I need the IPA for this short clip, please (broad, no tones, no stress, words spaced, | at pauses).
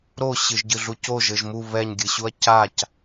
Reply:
ɾo ɕɨʒɟɨɮucoʒ ɘʒmu βɛɲ ɡʲɨɕuɐ̯cac